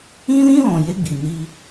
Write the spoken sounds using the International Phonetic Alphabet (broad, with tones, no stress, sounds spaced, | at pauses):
ĩ˦ l ĩ˦ l ɔ̃˨ j e˦ ɡ͡b i˨ n i˦